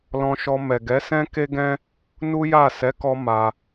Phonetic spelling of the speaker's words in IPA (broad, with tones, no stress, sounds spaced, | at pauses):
l ɔ̃˧ ʃ ɔ˧ m ɛ˨ ɡ ɛ˨˦ s ɛ̃˦ k e˦ ɡ ɛ̃˦ | n u˦ j a˦˨ s ɛ˨˦ k ɔ˧ m a˧